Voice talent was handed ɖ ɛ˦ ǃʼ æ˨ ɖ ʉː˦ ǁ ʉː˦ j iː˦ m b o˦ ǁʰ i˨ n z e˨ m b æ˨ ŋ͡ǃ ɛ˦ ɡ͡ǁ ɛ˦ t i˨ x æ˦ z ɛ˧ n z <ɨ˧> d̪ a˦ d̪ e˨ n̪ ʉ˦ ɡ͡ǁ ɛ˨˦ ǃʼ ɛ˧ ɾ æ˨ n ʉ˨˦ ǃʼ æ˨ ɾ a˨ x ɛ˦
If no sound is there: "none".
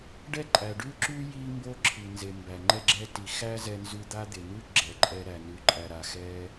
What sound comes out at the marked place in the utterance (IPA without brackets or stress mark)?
ʉ˧